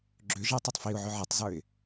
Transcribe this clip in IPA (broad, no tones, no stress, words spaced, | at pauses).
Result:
ɡ͡ǁʏʒ ɛtˤɵtˤ fiʊ̯ʕʏ ʕɛtˤzə˞ɪ̯